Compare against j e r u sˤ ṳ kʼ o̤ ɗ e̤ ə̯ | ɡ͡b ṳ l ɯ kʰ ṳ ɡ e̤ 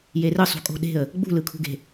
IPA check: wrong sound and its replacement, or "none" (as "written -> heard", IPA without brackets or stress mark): u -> ɯ